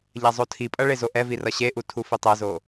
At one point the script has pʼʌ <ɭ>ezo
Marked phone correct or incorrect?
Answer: correct